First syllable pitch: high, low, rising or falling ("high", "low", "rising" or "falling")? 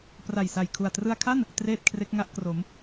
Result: low